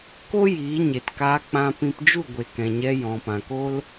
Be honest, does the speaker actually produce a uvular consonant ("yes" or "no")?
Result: no